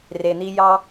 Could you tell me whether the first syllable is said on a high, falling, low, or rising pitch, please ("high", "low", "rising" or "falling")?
low